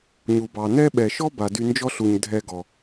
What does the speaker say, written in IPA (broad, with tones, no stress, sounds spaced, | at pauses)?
ɲ u˩ b ɑ˩ n ɛ˧ ɓ ɛ˩ ʃ ɔ˥ b a˩ d y˧ n d͡ʒ ɔ˥ ɬ u˩ ɲ dʱ ɛ˧ ɡ ɔ˩